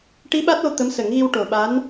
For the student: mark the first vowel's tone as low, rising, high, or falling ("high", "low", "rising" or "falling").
rising